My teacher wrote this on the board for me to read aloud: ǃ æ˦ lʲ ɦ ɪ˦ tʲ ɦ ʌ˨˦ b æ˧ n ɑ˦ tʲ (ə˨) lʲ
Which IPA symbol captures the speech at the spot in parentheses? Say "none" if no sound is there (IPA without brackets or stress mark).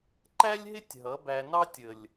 ə˨